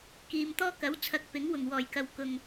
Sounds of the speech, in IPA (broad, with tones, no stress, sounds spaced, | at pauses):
k iː˨ m t̪ ɔː˥ k ɐ˨˥ w t͡sʰ ɐ˧ k̚ p ɪ˨˥ ŋ w ʊ˨˩ ŋ w ɔː˨˩ j k ɐ˨ w k ʊ˨˩ ŋ